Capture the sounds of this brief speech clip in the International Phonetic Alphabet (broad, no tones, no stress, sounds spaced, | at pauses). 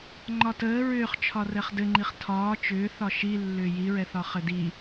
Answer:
ŋ͡ǃ ɒ t əː ɹ ʏː χ t͡ʃʰ ɒ r ɛ χ d ɘ ŋ͡ǃ i χ tʰ ɒː t͡ʃ ʏː θ ɒ ʃ i lː ʏː j i ɹ ɛ θ ɒ χ ɘ d i